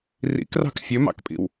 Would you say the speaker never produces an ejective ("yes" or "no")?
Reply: no